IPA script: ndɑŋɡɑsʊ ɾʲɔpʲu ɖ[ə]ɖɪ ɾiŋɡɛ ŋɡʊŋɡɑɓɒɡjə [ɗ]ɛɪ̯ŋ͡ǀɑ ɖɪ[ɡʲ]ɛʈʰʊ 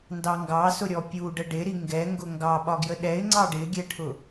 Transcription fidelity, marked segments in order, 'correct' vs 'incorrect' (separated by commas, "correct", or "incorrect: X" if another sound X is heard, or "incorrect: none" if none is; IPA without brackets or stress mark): correct, correct, correct